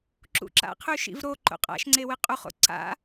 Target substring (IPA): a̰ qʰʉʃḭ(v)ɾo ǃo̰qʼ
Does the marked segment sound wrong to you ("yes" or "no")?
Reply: no